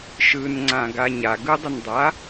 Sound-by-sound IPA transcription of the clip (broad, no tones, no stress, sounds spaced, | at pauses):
ʃ ɯ n ŋ͡ǀ ã ɡ a ɲ a ɡ ɯ dˤ ə n dˤ a